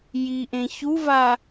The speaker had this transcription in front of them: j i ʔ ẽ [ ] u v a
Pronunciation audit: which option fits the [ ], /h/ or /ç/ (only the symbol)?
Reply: ç